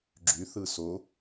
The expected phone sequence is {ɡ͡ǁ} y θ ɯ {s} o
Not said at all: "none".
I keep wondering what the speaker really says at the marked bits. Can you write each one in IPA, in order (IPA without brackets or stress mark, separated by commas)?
ɡ͡ǁ, s